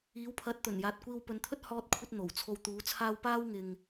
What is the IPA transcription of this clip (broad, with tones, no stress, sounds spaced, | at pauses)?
iː˨˥ w pʰ ɐ˨˥ t̚ t̪ ɵ˨˩ n j aː˨ t̚ kʷ iː˧ w p ɵ˨˧ n t̪ʰ ɵ˥ t̚ h ɔː˥ t̚ kʷʰ ɐ˥ t̚ n̪ o˨˩ w t͡sʰ o˧ w t̪ uː˨˥ t͡sʰ aː˥ w p aː˥ w ŋ ɪ˨ ŋ